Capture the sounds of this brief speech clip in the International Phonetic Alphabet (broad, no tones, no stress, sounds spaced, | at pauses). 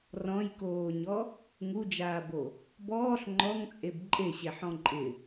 r ɔ̃ j k oː ɲ ɔ | ŋ u d͡ʒ aː b o | b ɔː ɬ ŋ͡ǃ ɔ ŋ t͡sʼ e b ǃʼ e ɕ e ħ ɔ̃ ǃʼ ɪ